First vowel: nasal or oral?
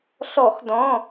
oral